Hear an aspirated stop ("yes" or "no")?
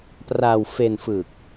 no